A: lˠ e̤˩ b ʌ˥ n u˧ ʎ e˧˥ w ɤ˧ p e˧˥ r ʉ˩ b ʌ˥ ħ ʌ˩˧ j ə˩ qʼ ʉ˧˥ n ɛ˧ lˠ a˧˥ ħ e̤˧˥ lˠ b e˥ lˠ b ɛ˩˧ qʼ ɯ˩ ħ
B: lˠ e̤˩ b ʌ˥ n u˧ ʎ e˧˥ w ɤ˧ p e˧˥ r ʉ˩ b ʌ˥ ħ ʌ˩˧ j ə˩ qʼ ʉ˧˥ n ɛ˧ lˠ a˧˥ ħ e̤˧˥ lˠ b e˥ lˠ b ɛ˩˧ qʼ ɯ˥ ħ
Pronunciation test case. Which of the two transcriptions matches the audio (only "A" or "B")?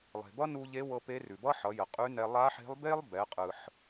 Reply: A